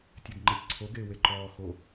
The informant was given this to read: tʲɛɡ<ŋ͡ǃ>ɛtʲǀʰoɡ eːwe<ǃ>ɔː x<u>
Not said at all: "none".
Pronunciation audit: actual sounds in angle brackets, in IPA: ŋ͡ǃ, ǃ, o

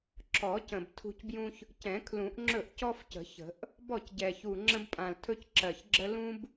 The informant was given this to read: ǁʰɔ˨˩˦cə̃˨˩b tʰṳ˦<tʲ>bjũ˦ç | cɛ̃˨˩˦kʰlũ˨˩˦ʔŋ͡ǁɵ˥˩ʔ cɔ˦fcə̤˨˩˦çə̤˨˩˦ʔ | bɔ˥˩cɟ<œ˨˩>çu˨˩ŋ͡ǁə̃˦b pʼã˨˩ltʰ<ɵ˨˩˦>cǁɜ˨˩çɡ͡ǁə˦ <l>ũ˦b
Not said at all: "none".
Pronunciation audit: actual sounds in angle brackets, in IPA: c, ɛ˨˩, ɵ˦, l

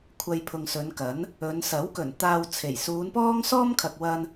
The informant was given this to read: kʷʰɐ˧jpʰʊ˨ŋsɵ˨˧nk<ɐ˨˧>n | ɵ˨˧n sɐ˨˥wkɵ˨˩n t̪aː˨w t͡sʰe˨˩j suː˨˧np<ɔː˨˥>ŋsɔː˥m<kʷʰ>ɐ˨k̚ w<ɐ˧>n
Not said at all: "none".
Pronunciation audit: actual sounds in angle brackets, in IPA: ɐ˨˥, ɔː˥, kʰ, ɐ˧

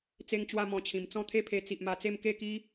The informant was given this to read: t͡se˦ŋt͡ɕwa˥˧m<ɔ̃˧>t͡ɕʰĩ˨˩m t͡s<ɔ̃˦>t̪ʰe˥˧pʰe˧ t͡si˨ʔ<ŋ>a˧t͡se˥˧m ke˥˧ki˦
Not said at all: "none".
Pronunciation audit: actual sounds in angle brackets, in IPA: ɔ̃˧, ɔ̃˥˧, m

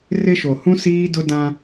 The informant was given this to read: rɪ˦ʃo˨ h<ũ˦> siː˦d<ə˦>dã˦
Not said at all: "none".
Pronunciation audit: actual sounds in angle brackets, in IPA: ũ˦, ʊ˦

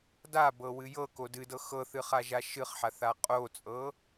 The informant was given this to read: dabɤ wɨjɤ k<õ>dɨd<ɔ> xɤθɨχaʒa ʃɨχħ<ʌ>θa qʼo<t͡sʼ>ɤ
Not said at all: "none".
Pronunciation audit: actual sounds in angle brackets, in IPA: o, ɤ, a, t͡sʼ

